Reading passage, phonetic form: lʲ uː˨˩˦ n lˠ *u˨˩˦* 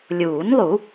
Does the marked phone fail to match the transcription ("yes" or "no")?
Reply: no